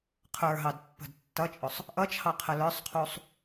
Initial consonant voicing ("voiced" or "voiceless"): voiceless